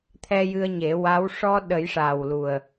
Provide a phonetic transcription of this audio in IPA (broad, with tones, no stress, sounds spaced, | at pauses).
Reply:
t̪ʰ ɛ˧ j ɨ˧ ə̯ ɲ e˨˩˦ w a˧˥ w ʂ ɔ˧ ɗ ə˨˩˦ j ʂ a˨˩ w l u˨˩ ə̯